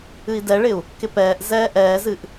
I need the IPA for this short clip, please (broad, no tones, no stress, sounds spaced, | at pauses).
ɨ i̯ d ɛ ɭ ɪ u̯ | k ɪ p ɛː ʔ z ɛː ʔ ɛː z ɨ ʔ